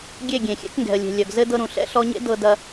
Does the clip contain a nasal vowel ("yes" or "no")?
yes